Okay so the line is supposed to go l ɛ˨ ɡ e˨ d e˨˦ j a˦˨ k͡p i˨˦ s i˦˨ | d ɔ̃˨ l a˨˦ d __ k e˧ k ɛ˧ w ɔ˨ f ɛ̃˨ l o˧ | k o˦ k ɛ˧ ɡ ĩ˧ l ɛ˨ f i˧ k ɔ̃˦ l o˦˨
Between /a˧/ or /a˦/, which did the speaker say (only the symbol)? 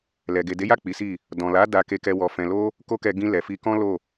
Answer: a˧